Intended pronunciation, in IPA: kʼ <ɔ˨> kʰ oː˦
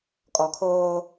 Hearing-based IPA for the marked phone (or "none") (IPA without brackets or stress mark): ɔ˨